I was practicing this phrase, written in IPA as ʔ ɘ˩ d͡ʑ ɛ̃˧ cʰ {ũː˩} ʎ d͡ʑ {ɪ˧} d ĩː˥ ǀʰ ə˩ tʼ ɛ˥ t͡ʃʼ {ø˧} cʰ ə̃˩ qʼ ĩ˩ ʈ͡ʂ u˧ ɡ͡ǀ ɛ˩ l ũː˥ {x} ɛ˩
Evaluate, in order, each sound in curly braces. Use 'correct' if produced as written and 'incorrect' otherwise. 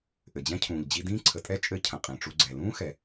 correct, incorrect: i˧, incorrect: ɘ˧, correct

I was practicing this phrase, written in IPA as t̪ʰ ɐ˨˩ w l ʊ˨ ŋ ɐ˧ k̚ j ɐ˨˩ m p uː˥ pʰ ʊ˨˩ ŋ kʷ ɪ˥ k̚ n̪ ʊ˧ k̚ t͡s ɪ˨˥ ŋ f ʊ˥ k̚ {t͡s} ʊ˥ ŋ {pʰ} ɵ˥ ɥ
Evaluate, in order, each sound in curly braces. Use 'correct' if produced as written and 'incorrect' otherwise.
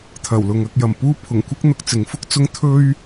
correct, incorrect: t̪ʰ

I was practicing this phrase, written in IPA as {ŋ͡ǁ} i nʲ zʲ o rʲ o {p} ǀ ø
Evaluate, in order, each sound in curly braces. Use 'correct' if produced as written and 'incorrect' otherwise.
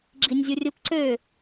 incorrect: ɡ͡ǁ, correct

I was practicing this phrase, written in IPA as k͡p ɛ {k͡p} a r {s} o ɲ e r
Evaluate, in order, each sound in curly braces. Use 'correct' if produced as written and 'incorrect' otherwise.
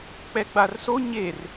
incorrect: ɡ͡b, correct

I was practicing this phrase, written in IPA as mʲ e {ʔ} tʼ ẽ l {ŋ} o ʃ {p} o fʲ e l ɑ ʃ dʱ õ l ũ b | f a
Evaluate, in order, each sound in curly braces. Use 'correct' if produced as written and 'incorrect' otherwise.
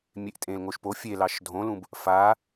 correct, correct, correct

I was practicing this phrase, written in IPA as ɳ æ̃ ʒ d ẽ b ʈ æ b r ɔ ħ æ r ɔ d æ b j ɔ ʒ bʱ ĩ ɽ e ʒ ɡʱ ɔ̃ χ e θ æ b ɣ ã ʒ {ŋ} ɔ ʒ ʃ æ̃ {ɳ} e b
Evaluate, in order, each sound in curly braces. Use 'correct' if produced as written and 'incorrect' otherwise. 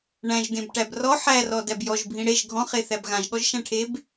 incorrect: ɠ, incorrect: ʈʰ

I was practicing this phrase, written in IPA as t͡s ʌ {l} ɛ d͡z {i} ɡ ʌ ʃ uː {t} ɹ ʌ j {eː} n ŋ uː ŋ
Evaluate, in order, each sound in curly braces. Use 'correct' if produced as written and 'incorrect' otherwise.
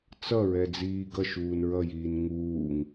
incorrect: ɹ, incorrect: iː, incorrect: n, incorrect: iː

